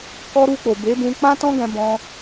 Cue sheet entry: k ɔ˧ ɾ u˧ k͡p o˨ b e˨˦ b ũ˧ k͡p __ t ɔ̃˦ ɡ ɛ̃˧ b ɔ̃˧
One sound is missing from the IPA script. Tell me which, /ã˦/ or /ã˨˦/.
ã˦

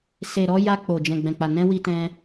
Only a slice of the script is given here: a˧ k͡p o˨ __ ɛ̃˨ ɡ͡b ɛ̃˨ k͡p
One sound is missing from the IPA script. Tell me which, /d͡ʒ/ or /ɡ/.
d͡ʒ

